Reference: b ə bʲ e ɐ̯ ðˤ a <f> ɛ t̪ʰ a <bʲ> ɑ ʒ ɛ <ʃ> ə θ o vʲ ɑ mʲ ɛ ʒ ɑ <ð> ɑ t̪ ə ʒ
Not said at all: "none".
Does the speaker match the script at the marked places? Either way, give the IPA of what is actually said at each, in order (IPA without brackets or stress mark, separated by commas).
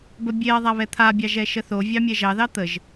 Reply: β, bʲ, ʃ, ð